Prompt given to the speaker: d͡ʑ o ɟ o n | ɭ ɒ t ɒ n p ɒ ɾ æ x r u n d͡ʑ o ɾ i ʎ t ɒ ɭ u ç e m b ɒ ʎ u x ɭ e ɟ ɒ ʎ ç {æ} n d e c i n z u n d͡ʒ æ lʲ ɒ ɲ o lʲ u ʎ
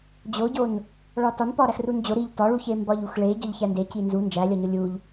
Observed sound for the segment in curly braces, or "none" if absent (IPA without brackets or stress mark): æ